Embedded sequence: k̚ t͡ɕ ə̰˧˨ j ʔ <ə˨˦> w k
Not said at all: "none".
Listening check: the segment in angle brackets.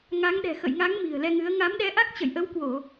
ə˨˦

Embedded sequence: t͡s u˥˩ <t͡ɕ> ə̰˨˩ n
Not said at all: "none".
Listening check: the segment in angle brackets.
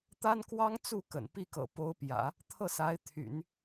k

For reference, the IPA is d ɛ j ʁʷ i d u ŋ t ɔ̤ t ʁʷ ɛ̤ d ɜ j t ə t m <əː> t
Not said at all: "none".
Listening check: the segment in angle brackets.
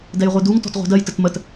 ə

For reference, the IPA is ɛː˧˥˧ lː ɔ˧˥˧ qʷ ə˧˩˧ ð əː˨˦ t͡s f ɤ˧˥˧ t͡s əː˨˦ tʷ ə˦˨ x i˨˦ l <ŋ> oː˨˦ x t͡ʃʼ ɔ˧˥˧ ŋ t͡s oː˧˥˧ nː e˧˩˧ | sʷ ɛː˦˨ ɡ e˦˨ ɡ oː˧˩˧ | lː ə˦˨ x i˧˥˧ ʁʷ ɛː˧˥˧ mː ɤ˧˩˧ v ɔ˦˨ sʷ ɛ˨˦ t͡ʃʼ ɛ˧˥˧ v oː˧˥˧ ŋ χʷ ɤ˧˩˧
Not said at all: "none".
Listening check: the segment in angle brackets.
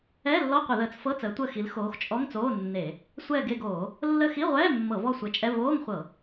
x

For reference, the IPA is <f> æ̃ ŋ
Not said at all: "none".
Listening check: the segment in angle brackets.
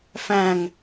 f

